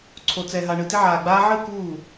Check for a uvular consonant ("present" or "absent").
absent